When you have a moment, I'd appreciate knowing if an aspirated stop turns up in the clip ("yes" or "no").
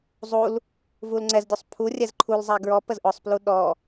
yes